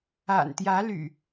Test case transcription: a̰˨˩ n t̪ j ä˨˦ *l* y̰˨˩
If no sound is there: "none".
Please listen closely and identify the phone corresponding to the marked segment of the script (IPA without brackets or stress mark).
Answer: l